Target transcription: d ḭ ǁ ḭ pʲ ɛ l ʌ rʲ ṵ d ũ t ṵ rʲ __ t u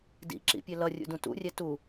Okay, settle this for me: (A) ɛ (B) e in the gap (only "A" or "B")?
A